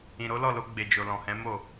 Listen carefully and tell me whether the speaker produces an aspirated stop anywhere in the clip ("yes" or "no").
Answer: no